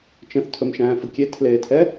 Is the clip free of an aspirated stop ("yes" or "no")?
no